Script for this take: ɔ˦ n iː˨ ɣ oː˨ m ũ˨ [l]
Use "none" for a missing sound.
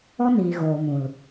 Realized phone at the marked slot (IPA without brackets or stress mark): l